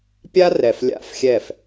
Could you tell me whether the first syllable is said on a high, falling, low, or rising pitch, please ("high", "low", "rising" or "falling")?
high